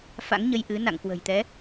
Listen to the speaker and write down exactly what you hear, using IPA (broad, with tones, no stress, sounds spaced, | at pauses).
f a̰˧˥ ŋ ɲ ə˧ j ʔ ɨ˨˦ n a̰˧˨ ŋ k w ə̤˨˩ j t̪ ɛ˨˦